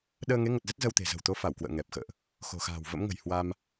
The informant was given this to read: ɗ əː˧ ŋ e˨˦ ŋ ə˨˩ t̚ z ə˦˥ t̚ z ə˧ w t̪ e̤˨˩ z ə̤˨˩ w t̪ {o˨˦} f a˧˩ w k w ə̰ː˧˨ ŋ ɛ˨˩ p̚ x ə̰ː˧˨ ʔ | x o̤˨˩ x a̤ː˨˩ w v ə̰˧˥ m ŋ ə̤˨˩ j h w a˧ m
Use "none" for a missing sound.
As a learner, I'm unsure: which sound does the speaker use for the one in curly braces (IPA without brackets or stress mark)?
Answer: o˨˦